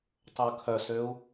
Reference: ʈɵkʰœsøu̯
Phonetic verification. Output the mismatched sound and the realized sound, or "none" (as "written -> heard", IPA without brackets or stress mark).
ʈ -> tˤ